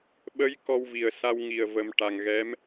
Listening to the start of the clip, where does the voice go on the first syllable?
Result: rising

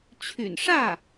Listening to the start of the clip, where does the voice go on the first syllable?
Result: low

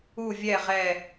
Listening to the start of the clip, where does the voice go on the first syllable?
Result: falling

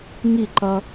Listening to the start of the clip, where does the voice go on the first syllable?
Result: falling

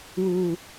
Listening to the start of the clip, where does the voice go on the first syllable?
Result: low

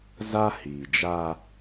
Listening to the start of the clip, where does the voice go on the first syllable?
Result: high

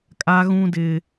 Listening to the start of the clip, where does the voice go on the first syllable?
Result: high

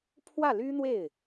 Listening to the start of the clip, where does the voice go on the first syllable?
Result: falling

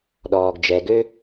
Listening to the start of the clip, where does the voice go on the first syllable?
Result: low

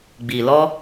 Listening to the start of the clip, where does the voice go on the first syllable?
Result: low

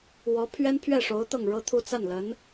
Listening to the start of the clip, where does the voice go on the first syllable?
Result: rising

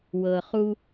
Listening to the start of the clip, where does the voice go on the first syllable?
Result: low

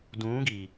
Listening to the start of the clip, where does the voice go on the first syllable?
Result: rising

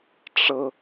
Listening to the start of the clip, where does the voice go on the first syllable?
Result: high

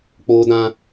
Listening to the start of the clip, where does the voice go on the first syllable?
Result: high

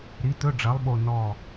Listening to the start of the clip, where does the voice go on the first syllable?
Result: rising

